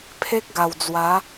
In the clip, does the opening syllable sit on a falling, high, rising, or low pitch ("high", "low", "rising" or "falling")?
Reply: high